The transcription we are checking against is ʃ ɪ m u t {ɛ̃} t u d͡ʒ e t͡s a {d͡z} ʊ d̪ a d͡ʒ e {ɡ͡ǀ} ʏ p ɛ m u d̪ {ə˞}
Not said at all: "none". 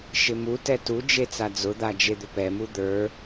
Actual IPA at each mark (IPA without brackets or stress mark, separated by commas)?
ɛ, d͡z, d̪, ə˞